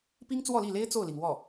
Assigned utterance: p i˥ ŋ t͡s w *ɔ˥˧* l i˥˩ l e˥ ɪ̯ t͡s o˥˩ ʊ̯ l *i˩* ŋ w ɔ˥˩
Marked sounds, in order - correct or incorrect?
correct, correct

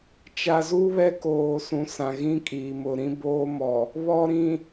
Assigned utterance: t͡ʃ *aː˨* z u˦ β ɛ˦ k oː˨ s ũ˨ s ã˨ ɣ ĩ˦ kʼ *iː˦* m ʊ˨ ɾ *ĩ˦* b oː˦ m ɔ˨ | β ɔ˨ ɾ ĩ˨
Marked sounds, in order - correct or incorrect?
incorrect: a˨, incorrect: iː˨, correct

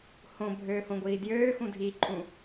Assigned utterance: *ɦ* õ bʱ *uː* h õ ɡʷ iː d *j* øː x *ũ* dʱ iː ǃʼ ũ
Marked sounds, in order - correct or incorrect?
incorrect: h, incorrect: øː, correct, correct

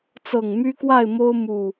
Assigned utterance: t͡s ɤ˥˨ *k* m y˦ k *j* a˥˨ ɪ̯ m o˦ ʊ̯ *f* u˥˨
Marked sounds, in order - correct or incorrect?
incorrect: ŋ, incorrect: w, incorrect: m

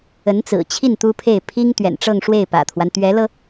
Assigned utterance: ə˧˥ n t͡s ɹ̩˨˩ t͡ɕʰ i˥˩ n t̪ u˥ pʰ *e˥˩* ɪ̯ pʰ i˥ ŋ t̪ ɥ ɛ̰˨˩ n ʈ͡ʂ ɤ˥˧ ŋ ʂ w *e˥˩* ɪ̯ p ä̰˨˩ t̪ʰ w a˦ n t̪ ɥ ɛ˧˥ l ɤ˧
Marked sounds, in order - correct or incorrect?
correct, correct

